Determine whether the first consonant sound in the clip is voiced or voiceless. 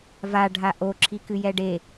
voiced